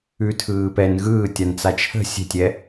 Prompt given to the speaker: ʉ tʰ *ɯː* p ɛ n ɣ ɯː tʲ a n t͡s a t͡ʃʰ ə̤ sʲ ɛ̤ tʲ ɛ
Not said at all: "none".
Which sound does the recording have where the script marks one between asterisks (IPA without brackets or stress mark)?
ɯː